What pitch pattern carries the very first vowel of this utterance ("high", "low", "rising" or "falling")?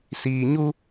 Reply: low